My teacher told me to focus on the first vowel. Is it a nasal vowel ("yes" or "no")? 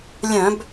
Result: yes